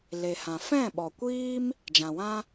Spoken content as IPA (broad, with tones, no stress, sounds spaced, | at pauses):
l e˨ h ã˨ f ɛ̃˦˨ ɓ ɔ˨ kʷ iː˦ m | d͡ʒ ã˨ w ã˦